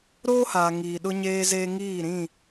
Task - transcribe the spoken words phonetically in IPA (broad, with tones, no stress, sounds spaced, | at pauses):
ɾ oː˦ h aː˨ ŋ iː˨ ɗ ʊ˦ ɲ eː˦ z eː˦ ŋ iː˦˨ ɾ ĩ˦˨